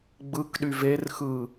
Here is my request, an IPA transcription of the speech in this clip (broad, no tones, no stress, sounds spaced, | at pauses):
ɡ͡b ɯ k ɗ y v e r x ɯ